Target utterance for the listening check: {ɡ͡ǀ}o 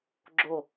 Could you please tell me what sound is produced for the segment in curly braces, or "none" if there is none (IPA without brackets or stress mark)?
ɡ͡ǁ